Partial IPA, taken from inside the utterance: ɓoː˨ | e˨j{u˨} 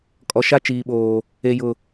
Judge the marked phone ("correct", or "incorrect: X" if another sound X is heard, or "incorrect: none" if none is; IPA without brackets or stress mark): incorrect: ʊ˨